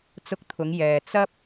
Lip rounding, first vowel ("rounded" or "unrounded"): rounded